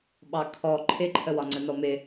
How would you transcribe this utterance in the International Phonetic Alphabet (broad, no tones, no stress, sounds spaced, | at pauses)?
ɓ ɑ kʰ ɔ ǃʰ ɪ ǃʰ ə w ɒ ŋ͡ǀ ə n ɔ m ɪ